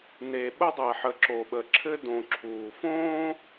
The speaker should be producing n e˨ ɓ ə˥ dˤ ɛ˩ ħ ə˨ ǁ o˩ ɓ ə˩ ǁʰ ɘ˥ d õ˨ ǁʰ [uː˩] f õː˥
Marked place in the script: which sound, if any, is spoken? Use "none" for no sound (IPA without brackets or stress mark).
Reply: uː˩